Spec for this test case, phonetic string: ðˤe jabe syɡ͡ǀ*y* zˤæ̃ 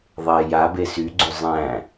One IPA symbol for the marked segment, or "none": y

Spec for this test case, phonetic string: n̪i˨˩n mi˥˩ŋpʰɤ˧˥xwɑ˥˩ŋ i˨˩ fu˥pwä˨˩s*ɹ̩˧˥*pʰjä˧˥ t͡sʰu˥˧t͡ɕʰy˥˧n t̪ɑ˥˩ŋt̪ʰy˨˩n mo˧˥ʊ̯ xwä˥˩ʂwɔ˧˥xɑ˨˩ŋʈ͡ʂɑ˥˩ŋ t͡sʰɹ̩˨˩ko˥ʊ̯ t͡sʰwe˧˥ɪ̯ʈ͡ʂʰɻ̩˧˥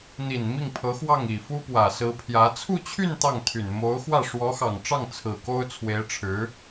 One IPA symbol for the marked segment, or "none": ɹ̩˧˥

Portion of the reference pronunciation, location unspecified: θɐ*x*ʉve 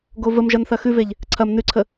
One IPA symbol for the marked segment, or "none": x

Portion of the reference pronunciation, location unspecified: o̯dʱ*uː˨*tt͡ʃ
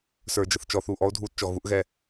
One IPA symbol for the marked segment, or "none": uː˧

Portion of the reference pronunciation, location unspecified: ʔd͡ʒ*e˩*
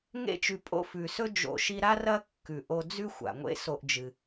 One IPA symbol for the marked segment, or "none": ɨ˩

